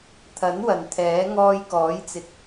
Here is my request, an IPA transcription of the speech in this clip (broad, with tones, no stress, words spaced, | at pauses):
t̪ʰɐ˨˥nwɐ˨n t̪ʰɛː˨˥ ŋɔː˧jkɔː˨˥jt͡sɪ˨˥k̚